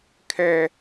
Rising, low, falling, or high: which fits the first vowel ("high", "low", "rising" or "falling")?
high